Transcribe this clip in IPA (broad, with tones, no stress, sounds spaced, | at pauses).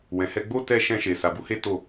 w ɛ̃˨ h ɛ˧ ɡ͡b o˦ t ɛ˧ ʃ ɛ̃˧ ʃ e˨ s a˨ b u˧ h e˦ t o˦˨